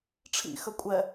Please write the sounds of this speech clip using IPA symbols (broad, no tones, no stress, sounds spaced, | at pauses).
ʈ͡ʂʰ ḭ x ə kʷʼ ɛ